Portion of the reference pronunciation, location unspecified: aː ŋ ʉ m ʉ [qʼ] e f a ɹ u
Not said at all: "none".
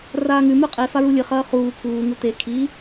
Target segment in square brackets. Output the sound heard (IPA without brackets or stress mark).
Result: qʼ